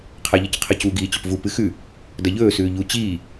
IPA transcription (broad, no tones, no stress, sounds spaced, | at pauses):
qʰ a ʎ ɐ c qʰ ɐ c u ɡ iː t͡ɕ ɵ p v u p ɨ x ʉ | d ɐ ʎ ɵː s ʉː ʎ u t͡ɕ iː